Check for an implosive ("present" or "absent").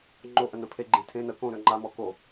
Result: absent